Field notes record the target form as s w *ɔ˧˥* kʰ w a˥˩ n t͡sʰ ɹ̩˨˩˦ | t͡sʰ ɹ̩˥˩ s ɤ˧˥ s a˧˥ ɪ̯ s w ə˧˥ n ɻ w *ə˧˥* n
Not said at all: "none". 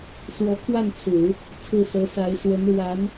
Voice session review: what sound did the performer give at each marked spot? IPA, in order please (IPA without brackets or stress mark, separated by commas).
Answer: ɔ˧˥, a˧˥